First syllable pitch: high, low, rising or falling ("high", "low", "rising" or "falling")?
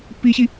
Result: high